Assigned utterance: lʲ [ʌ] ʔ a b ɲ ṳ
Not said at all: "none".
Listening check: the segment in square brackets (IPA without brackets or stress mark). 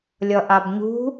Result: ʌ